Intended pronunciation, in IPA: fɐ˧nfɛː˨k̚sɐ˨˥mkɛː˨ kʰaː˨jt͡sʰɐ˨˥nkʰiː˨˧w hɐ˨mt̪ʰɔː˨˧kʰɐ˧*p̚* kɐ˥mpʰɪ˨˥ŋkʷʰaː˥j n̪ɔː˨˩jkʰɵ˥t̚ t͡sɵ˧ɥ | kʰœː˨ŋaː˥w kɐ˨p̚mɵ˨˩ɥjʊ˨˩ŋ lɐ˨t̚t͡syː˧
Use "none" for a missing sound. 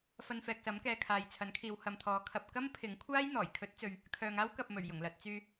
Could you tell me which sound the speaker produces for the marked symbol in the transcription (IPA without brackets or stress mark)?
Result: p̚